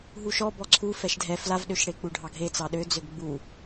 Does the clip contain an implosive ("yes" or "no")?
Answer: yes